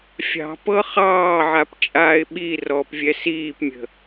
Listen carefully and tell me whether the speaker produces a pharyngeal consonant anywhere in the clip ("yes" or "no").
yes